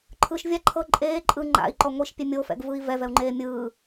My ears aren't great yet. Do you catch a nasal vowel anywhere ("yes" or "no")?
no